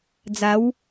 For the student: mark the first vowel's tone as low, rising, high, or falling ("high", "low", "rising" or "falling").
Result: rising